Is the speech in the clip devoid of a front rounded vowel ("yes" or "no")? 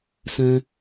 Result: yes